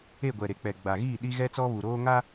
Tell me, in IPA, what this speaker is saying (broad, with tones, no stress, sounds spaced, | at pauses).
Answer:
e˦˨ ɡʷ ɛ˨ ɾ e˨ k͡p ɛ˨ ɡ͡b a˨ ɣ iː˦˨ ɗ i˦ ɣ ɛ˦ t͡s ɔ˦ β u˨ ɾ oː˦ ŋ a˦